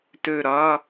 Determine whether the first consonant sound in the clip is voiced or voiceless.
voiceless